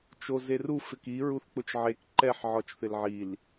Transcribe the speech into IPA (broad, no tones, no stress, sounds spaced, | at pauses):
t͡ʃ o z e r u f ɪ k i ɹ u θ k͡p ʊ t͡ʃ ʕ e k ǃ ɛ ħ ʕ ɔ t͡ʃ θ ɪ l ʕ i l